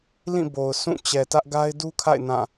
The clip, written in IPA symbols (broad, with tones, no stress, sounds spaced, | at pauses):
l ĩ˦˨ b o˨ ʊ̯ s ũ˦˨ t͡ɕ ɛ˨ t ä˦ ʔ ɡ a˦ ɪ̯ d u˦ kʰ a̰˦˨ ɪ̯ n ã˦˨